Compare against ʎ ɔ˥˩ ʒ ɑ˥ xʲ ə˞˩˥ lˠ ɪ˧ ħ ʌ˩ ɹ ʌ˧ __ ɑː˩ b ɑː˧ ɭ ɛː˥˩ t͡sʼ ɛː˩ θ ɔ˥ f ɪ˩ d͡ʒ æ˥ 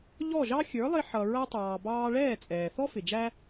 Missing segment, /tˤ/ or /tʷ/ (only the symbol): tˤ